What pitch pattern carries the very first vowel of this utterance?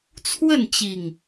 falling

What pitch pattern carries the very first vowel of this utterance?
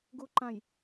low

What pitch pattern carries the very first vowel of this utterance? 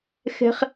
high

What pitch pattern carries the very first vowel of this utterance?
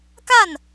falling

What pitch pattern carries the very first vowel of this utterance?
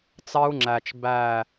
high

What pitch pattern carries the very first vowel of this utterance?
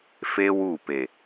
high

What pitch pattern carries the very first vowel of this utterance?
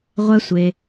high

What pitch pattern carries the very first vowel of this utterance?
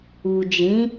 low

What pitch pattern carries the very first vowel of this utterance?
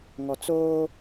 low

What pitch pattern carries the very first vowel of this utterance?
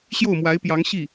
falling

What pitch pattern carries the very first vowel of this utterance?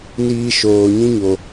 high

